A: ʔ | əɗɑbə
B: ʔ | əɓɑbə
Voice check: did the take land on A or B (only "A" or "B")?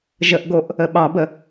B